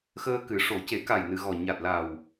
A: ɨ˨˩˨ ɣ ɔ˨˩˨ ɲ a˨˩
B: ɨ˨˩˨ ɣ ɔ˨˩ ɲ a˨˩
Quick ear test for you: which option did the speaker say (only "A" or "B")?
B